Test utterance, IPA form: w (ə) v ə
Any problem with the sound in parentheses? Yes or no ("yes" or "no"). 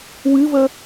yes